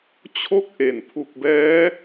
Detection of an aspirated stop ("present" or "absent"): present